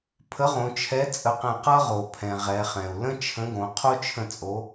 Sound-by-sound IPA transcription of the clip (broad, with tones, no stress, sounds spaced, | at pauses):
pʰ ə˨˥ ʁ õ˩˧ t͡ʃʰ ɛ˨˥ t͡sʼ ə˧˩ q ɛ̃˧˩ q ʌ˦ ʁ o˩ pʰ ɛ̃˩ ʁ ɛ˩˧ χ ɛ̃˩ u̯ l ə̃˦ t͡ʃʰ ə̃˨˥ ɡ õ˩˧ qʰ o˦ t͡ʃʰ ə̃˧˩ t͡sʼ o˩˧